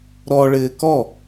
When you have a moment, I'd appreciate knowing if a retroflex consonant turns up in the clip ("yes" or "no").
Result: yes